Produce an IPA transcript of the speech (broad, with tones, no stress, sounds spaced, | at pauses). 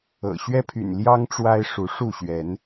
ɤ̰˨˩ ɕ ɥ ɛ˦ pʰ y̰˨˩ n l j ɑ˦ ŋ ʈ͡ʂ w a˦ ɪ̯ ʂ u˨˦ ʂ u˥˨ ɕ ɥ ɛ˨˦ n